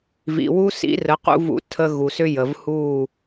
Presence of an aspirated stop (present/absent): present